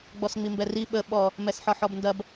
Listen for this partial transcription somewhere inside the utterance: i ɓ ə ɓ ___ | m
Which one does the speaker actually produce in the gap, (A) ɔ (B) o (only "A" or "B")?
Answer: A